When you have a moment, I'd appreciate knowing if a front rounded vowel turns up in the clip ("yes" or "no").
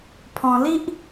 no